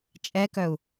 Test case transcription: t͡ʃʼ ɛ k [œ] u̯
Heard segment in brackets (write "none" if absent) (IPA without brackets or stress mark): œ